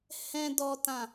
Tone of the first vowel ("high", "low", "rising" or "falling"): low